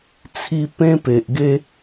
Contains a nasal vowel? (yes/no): yes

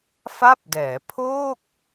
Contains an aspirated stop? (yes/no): yes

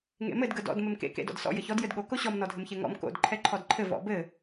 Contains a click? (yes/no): yes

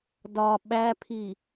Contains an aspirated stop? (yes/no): yes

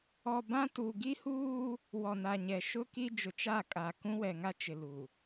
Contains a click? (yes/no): no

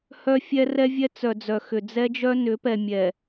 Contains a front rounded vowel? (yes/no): yes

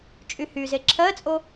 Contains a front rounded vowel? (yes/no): yes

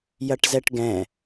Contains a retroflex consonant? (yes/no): yes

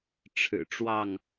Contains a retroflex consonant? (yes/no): yes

